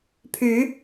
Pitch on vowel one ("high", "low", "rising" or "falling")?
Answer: rising